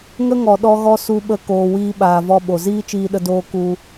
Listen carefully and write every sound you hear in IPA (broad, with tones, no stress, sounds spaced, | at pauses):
ŋ ə˦ ŋ ɔ˨ ɗ ɔ˧ ɣ ɔ˧ s u˧ ɓ ə˧ k oː˨ w iː˧ ɓ aː˨ v ɔ˧ ɓ o˨ z iː˦ t͡ʃ iː˧ ɗ ə˧ d oː˧ k u˧